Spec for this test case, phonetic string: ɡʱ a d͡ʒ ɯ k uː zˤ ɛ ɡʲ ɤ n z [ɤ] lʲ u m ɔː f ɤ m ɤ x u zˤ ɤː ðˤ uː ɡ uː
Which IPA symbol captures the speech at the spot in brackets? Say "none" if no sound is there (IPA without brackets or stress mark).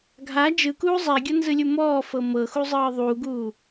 ɯ